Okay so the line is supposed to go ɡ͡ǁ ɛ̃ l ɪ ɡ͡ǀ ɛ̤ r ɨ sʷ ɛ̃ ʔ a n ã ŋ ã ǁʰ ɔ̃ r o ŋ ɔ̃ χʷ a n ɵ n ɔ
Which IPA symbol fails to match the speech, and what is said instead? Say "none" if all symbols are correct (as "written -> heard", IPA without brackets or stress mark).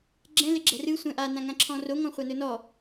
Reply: ɡ͡ǀ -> ɡ͡ǁ